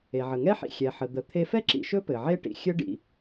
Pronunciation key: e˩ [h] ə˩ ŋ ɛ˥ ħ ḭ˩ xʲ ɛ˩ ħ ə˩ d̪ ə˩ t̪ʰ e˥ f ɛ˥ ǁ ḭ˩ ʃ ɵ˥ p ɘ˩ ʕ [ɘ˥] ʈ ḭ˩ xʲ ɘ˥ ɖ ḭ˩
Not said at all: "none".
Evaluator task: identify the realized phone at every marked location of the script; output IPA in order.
ʕ, e˥

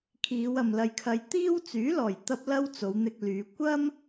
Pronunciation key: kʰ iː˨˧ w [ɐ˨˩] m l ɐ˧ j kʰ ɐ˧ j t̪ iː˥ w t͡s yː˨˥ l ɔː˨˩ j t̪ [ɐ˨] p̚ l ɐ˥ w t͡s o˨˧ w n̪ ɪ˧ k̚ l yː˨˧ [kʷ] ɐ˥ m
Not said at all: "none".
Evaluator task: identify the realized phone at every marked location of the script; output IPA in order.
ɐ˨, ɐ˧, kʷ

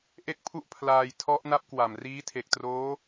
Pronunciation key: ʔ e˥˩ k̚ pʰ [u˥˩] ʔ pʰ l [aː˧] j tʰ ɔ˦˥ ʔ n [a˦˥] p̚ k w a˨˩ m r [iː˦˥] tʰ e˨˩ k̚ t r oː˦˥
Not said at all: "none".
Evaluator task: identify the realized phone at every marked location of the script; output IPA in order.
u˥˩, aː˧, a˦˥, iː˦˥

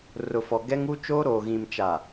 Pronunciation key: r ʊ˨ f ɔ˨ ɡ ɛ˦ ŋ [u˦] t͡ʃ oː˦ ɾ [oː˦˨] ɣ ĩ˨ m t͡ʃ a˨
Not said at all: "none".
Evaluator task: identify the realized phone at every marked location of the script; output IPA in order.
u˦, oː˨

